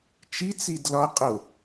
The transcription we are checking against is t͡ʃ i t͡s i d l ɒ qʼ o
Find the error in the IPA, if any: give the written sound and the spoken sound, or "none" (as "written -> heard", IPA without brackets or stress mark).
none